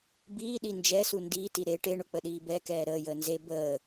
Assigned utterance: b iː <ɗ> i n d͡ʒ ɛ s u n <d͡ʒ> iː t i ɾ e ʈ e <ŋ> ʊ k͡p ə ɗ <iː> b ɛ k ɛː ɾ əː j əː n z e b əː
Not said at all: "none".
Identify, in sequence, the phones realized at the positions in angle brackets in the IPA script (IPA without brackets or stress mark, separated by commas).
ɗ, d, ɳ, iː